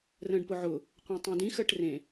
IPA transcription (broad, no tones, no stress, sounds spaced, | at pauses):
r ə̃ː ɖ p ʊ ʕ ʊ | qʷ ẽ tˤ ẽ d ĩ x əː ʈ r ẽ